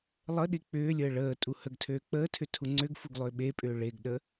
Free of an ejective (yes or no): no